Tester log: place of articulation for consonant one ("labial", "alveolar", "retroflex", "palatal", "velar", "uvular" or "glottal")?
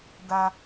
alveolar